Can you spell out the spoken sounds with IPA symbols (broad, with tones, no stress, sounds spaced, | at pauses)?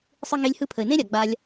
sˤ ɯ˧ ŋ e˧ lʲ h ɯ˧ pʰ ə˨ ɪ̯ n ẽ˦ ɾʲ a˨ ɡ͡b a˧ lʲ